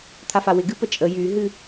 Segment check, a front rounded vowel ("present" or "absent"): present